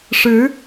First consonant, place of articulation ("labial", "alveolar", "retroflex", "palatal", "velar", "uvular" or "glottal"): retroflex